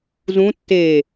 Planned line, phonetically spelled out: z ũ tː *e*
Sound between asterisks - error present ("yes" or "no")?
no